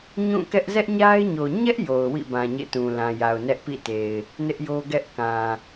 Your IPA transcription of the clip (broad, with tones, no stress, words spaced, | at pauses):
ɲũ˦˨kɛ˦ʔ zɛ˦ʔɲa˦ɪ̯ɲo˨ ɲɛ˦ʔ jo˨ʊ̯wḭ˦˨bã˨ ɲḛ˦˨tũ˨lã˨ja˨ʊ̯ nɛ˦ʔpḭ˦˨te˨ɪ̯ | nɪ˦ʔjo˦ɡɛ˦ʔ kã˨